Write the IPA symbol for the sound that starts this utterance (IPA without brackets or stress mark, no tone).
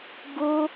ɡ